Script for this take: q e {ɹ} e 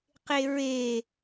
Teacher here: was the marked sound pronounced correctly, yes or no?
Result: yes